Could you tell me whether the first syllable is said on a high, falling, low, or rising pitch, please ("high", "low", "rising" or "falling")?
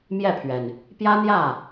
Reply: falling